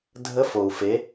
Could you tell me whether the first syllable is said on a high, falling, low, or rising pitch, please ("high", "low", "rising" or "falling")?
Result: rising